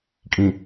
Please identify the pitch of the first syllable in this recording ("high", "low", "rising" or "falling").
low